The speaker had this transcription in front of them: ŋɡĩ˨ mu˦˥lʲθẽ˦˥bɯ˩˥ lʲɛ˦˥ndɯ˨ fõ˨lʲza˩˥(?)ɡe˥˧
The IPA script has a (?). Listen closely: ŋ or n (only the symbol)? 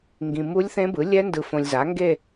ŋ